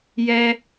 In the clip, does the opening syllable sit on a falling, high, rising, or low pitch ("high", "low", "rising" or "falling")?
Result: high